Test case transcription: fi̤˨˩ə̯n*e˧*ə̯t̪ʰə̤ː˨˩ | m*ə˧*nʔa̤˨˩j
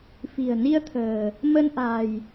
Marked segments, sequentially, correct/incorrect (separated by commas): incorrect, correct